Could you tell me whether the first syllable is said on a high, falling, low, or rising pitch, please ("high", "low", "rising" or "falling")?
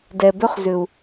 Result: low